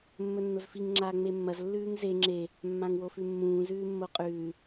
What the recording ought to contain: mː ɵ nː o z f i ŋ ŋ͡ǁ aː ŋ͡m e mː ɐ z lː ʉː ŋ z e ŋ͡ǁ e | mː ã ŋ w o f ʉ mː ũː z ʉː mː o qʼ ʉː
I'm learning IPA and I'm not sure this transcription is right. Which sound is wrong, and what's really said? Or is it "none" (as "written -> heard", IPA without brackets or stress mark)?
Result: none